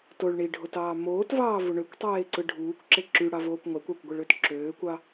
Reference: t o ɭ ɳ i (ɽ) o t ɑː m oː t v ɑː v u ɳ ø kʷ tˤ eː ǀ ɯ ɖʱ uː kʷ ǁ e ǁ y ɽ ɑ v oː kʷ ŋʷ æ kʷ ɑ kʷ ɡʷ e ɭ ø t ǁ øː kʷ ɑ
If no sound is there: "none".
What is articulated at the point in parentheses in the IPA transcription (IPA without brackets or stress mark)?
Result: ɖʱ